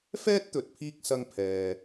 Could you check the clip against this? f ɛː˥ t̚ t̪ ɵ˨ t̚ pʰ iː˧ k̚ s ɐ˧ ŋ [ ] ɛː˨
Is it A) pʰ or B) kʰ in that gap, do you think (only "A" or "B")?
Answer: A